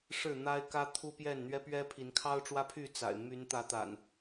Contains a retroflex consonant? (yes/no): yes